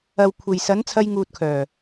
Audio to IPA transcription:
ɐ˨w kʷʰe˨j sɐ˨˥n t͡sʰɐ˧jŋuː˨t̚kʰœː˨˩

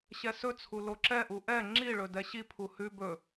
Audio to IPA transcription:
ɕɛsɵt͡sʰu loǁɛʔu ʔɛ ŋ͡ǁiɭɵ dɛɕipʰu hʉ bɵ

